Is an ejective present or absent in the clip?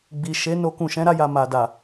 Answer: absent